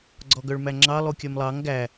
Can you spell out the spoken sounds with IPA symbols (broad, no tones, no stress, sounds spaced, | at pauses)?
ɡ͡ǀ ɔ ɡ œ ɭ m æ ŋ͡ǁ ɑ lˠ u kʲ œ m lˠ ɑ ŋ ɡ æ